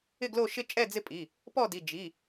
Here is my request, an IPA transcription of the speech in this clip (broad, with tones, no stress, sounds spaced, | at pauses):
ɪ˥˨ ɡ l o˥˨ ʃ ɪ˦ t͡ʃʼ ɛ˥˨ d͡z ɪ˦ pʼ i˩˧˩ | p ɔ˥˨ d i˩˧˩ d͡ʒ i˩˧˩